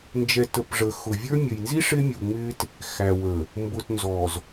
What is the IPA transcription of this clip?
n d͡ʒ ɛ˨ t ə˨ p ʐ ə˨ x ʊ˨ vʲ ə˞˦ mʲ ə˨ j n z i˦ ʂ ɪ˦ mʲ u˨ ŋ͡m ɪ˦ t | x æ˨ w ə˨ | m b ʊ˨ t n z ɔ˨ z

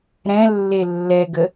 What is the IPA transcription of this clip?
ɾ ɛ̃ lː e lː ɛ ɡ ə

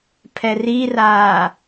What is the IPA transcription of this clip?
pʰ ɛ r i r aː

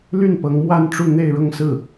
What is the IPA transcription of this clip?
l y˥˩ n p ɤ˧˥ ŋ m w a˥˧ n ʈ͡ʂ u˥˧ n̪ e˥˧ ɪ̯ ɻ ʊ˥˧ ŋ s ɹ̩˥˩

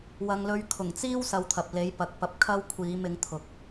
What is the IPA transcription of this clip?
w ɐ˨˧ ŋ l ɵ˧ ɥ kʰ ʊ˨˩ ŋ t͡s iː˥ w s ɐ˧ w t̪ʰ ɐ˨ p̚ l e˨˥ j p ɐ˨ k̚ p ɐ˧ p̚ kʰ ɐ˥ w kʷʰ iː˨˥ m ɪ˨˥ ŋ t̪ʰ ʊ˨ k̚

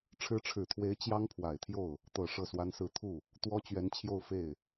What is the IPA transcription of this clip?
ʈ͡ʂʰ ɻ̩˧˥ ʈ͡ʂʰ ɻ̩˨˩ t̪ʰ w e˧˥ ɪ̯ t͡ɕ j ɑ˥ ŋ pʰ w a˨˩ ɪ̯ t̪ʰ j o˥˩ ʊ̯ | t̪ ɤ˨˩ ʂ ɤ˥˩ s w a˥ n s ɹ̩˥˧ t̪ʰ u˥˩ | t̪ w ɔ˥ t͡ɕ ɥ ɛ˧˥ n t͡ɕʰ j o˥˧ ʊ̯ f e˥˩ ɪ̯

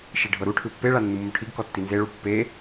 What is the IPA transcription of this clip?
ʃ i ɖʱ ɤ ɾ u ʈʰ ɯ pː e ɭ a nː u mː o ʈʰ i ɡ k ɔ tː i n z e ɭ u pː e

